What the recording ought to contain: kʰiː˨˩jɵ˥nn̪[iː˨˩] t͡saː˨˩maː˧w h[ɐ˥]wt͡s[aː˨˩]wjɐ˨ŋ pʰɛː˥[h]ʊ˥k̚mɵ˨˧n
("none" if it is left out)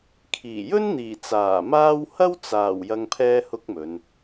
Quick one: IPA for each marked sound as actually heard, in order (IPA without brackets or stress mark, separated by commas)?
iː˨˩, ɐ˥, aː˨˩, h